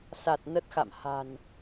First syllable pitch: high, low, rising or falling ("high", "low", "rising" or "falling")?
low